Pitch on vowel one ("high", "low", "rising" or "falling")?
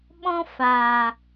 high